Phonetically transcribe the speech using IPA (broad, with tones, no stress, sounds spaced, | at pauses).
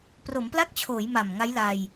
p r o˩˦ m p l a˥˩ k̚ t͡ɕʰ oː˩˦ j m a˨˩ m ŋ a˦˥ j l a˧ j